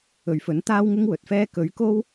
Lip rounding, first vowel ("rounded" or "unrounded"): rounded